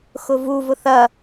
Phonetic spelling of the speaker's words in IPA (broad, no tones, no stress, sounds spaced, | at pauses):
x ʊ v u v ʊ θ ɐ